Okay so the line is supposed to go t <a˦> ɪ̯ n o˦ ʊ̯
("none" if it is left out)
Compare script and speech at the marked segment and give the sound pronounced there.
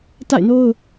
a̰˦˨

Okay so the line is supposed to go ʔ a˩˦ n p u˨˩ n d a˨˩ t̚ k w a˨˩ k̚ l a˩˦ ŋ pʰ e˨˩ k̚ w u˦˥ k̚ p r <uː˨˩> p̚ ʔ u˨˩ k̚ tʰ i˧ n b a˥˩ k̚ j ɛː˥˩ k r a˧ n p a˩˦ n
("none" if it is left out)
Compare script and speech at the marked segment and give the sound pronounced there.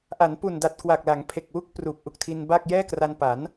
uː˨˩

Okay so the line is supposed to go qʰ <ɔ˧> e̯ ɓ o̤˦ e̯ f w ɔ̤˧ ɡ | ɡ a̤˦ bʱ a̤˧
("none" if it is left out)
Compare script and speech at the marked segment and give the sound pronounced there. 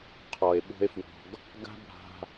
ɔ˨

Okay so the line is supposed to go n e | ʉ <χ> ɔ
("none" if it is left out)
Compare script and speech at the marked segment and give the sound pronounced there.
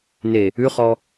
χ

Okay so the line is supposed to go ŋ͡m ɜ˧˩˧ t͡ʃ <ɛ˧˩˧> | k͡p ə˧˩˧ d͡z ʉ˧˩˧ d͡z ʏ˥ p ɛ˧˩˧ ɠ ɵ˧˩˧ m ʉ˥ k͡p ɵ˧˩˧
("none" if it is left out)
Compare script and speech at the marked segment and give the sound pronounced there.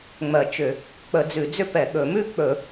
ʏ˧˩˧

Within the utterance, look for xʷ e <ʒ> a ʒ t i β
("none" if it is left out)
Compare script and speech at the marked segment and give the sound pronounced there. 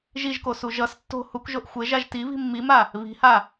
ʒ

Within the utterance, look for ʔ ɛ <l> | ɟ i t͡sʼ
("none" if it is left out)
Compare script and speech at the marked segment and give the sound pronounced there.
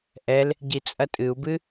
l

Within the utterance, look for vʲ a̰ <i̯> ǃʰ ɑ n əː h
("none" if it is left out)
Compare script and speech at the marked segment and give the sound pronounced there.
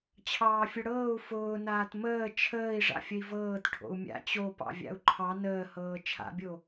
u̯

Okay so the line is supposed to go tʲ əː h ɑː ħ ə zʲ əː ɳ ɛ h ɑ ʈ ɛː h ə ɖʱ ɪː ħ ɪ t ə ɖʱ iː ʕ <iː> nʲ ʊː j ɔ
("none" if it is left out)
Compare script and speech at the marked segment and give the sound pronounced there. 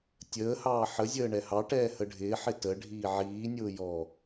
iː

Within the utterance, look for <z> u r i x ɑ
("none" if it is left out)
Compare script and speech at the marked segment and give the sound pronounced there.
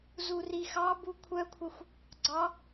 z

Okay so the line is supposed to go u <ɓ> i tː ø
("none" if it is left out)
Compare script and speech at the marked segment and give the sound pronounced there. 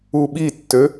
ɓ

